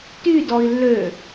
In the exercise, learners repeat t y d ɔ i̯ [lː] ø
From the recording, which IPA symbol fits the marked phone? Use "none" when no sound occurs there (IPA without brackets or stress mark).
lː